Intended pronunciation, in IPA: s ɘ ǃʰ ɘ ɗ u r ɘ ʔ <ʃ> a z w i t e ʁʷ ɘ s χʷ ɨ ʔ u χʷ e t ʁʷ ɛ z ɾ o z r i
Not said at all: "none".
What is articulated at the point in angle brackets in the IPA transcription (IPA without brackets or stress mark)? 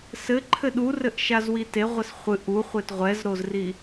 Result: ʃ